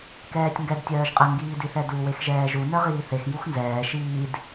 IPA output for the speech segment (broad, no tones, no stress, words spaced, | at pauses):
kɛːtʲŋɡɛd tʲœːʒqʼə ŋɡiːdiθɛdu wexʒɛːʒu nœʁiːθex juxnzɛː ʃiːd